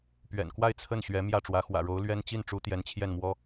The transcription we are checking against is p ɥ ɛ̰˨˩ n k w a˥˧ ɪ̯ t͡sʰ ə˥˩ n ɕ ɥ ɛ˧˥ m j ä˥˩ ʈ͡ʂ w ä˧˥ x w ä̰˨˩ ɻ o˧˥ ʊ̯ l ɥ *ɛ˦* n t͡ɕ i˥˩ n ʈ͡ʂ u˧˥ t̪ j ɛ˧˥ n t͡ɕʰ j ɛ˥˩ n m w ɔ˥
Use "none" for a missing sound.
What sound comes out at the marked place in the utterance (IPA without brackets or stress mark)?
ɛ˥